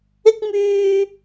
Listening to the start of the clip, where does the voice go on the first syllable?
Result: high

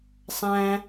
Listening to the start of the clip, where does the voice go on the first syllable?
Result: high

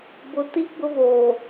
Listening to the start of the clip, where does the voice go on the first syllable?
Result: low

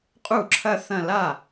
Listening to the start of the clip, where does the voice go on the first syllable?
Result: falling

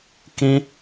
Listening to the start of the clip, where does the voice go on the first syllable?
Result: high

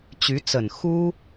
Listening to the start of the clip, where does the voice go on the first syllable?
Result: rising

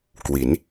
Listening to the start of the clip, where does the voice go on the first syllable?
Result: rising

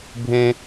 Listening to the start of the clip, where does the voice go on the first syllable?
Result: high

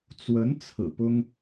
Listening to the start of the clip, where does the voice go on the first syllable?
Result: rising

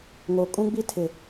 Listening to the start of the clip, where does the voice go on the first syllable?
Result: low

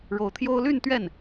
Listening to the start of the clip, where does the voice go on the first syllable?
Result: rising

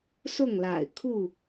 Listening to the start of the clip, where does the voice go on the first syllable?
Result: falling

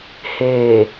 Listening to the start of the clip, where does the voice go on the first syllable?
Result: low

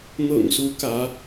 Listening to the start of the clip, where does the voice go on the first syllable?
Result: low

